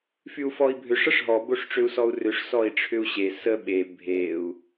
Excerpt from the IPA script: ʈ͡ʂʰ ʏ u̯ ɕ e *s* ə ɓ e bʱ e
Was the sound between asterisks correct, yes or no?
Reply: yes